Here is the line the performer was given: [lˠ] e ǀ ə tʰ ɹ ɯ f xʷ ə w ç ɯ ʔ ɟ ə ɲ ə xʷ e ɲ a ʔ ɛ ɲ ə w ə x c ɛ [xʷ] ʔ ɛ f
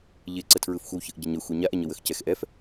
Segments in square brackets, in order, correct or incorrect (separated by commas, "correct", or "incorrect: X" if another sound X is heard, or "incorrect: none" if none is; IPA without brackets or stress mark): incorrect: ʎ, incorrect: x